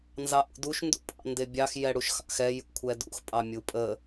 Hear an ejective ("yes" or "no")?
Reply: yes